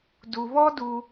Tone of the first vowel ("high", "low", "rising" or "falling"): low